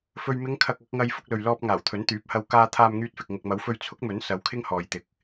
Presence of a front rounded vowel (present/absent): present